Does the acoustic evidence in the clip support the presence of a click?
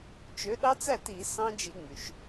no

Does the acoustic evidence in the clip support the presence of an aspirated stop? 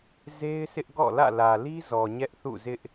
no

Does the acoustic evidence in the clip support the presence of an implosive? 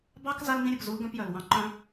no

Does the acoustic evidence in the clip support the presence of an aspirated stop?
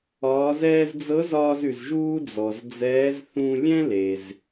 no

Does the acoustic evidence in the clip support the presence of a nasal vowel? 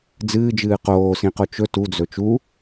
yes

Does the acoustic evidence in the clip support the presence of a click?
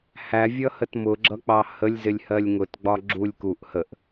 yes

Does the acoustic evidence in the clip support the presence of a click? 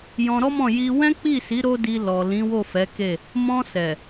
no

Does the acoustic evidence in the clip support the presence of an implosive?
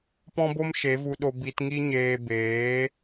yes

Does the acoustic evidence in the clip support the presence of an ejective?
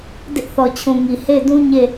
no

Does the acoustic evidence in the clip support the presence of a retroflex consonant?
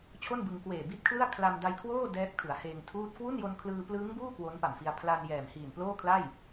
no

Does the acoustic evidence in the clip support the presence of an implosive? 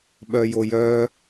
yes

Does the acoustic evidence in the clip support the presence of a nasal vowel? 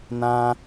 yes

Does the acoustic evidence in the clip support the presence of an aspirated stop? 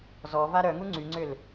no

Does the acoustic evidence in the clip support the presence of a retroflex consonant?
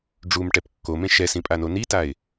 yes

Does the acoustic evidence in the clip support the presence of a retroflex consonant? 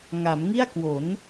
no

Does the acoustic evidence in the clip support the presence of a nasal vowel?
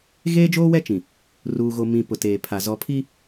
yes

